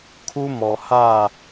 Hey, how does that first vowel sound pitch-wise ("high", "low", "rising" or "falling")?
high